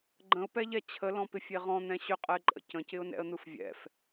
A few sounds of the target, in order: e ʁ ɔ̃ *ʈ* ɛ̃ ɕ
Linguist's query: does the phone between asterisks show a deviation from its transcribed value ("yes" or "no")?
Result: yes